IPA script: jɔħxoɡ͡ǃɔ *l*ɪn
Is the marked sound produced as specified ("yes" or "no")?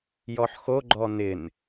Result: no